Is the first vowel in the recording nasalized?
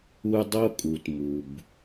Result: no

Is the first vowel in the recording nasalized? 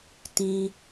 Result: yes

